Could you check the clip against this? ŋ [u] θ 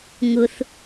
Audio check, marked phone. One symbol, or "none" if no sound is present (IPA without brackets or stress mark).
ʊ